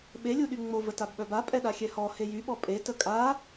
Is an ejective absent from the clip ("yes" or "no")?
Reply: no